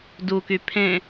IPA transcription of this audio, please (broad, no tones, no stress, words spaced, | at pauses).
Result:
duky pʰẽ